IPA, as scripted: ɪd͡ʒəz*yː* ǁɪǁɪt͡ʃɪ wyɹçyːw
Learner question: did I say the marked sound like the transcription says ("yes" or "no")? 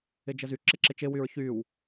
no